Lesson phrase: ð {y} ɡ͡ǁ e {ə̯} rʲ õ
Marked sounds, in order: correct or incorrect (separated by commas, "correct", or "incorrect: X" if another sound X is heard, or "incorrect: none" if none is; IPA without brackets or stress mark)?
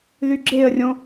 correct, correct